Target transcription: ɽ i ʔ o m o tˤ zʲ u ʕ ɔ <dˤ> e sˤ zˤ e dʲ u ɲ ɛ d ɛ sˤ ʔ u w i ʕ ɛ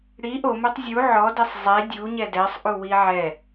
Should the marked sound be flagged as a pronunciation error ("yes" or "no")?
yes